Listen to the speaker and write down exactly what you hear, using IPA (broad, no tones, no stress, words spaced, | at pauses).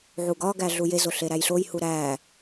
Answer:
ʕuɡɒɡæ ɮujezo ɬeɾæjɬojhu ɾæː